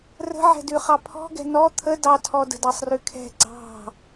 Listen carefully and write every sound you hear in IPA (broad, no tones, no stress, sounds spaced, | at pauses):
r ə̤ ʕ ɛ̤ d ʉ χ ɑ pʰ ɔ̤ ɡ ɛ̤ n ɔ t̪ʰ ə d ɑ tʰ ɔ d ə̤ d ɑ sˤ r ʉ kʰ ɛ̤ ɡ͡ǀ ɑ̤